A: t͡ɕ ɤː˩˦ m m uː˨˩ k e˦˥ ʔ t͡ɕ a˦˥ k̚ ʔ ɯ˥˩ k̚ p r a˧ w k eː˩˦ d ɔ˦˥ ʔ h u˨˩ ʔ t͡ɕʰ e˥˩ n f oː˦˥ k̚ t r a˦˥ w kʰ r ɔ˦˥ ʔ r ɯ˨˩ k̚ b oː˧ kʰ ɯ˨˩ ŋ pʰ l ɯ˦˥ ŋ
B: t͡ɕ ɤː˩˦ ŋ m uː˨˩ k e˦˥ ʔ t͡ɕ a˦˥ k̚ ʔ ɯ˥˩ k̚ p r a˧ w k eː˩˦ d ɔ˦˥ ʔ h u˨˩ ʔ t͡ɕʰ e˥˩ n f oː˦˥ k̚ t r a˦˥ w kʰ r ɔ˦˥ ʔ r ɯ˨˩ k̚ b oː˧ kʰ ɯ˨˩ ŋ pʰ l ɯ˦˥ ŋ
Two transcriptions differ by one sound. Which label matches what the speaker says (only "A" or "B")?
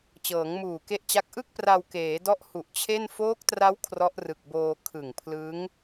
B